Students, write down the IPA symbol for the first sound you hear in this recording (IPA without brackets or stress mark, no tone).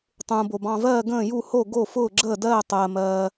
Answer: tˤ